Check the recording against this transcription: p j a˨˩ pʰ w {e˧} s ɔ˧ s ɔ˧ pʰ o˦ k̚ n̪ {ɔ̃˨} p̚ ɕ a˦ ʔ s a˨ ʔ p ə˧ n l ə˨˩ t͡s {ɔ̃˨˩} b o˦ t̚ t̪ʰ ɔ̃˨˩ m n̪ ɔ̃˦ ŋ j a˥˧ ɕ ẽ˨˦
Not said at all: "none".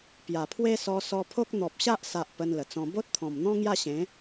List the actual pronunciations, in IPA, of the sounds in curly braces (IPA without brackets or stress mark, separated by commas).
e˦, ɔ˨, ɔ̃˧